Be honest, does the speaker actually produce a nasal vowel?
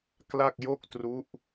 no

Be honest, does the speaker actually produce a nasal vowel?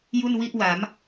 no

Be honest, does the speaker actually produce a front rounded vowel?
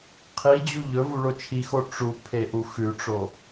no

